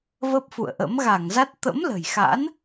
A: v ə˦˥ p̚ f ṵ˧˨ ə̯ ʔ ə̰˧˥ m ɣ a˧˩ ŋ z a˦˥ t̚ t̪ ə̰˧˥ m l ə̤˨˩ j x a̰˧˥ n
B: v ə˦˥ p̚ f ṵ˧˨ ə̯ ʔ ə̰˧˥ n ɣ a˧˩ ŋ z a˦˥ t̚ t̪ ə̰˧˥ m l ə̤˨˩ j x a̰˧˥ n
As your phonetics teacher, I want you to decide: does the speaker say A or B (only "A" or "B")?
A